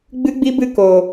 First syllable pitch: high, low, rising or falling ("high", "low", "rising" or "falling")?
high